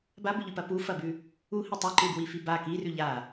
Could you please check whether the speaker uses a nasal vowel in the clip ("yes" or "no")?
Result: no